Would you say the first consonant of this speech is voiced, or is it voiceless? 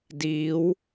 voiced